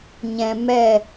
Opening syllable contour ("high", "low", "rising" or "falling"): low